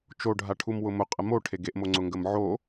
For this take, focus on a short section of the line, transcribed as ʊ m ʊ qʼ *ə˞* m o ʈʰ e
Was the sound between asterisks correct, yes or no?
no